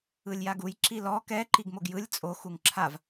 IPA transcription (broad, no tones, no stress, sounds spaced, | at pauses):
ɯ lʲ j a ɡ u j ǁ i l ɔ k ɛ ǃ i ɡ m o ɡ j ɯ lʲ t͡sʼ o x u ŋ ǁʰ a v